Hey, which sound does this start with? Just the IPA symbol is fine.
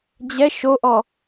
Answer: d͡ʑ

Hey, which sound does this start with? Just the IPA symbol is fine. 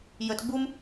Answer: j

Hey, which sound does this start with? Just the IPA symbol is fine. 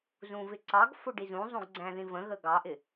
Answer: z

